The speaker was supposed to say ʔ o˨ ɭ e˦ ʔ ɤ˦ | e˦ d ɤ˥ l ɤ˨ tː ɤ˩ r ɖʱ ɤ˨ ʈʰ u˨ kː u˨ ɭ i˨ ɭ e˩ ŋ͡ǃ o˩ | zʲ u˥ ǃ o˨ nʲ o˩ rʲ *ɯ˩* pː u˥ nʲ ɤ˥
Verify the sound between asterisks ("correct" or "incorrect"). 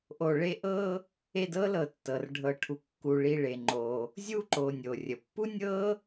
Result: incorrect